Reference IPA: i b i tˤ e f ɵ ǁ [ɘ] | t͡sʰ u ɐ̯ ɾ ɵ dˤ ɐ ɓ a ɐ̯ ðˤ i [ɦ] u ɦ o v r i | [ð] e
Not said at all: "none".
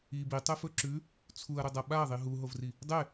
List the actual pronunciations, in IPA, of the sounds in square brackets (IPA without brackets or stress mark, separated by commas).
ʉ, ɦ, dˤ